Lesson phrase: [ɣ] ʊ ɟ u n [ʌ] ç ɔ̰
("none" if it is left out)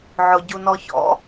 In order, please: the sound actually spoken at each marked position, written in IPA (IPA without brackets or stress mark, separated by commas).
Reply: ʕ, ɔ